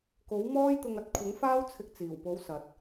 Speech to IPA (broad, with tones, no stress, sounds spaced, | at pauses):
k o˨˥ w m ɔː˥ j t̪ ʊ˧ ŋ ɐ˨˥ t̚ kʷʰ ɪ˨˥ ŋ f aː˥ w t͡sʰ ɪ˧ k̚ t͡s iː˨˩ w p o˨˥ w s ɐ˨ t̚